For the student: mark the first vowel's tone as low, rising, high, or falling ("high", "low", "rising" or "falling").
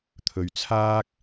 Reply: low